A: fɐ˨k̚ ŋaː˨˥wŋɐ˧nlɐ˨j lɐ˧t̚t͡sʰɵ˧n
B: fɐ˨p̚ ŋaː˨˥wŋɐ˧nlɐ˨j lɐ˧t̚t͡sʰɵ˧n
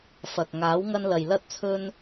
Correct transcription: A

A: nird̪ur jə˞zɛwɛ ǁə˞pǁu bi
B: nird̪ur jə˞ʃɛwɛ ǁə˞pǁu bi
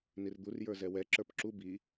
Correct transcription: A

